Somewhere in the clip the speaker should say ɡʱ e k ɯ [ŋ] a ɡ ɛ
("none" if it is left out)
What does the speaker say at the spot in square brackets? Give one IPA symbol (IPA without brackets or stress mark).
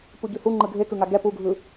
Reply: ŋ